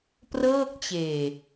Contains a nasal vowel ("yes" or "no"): no